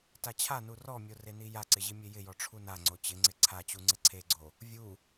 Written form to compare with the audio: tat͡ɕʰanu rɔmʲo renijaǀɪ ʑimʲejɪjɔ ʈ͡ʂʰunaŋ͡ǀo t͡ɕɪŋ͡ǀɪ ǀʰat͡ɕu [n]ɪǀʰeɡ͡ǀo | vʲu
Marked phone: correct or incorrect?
incorrect